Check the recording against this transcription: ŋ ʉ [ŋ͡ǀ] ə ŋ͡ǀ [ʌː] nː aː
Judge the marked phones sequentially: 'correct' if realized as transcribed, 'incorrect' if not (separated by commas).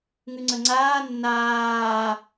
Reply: correct, incorrect